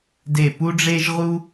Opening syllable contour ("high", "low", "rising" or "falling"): falling